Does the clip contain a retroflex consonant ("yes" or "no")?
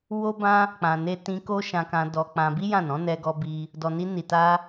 no